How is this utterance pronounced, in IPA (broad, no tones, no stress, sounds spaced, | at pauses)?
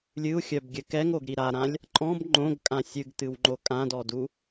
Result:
lʲ ɨ u̯ xʲ œ b ɡʲ ɘ k ɛ ŋ o ɡ ɾ i ɾ a ɾ ã lʲ | ǃʼ ɔ̃ b ŋ͡ǃ õ ɡ kʼ ã sʲ ɨ ɡ t ɨ w ŋ͡ǃ o kʼ ã d ɔ d u